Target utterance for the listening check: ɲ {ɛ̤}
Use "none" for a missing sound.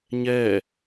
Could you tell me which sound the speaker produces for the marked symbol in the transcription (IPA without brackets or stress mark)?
ɛ